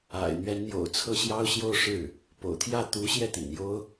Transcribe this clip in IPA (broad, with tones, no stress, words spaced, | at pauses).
a̰˨˩ɪ̯n̪ɥɛ˧˥nn̪jo̰˨˩ʊ̯ t͡sʰɤ˥˩ɕjɑ˥ʊ̯ɕjo˥˧ʊ̯ ʂɻ̩˥˩ | po̰˨˩ʊ̯t̪ʰjä˥˩ t̪u˧˥ɕjɛ˥˩ t̪ḭ˨˩njo˥ʊ̯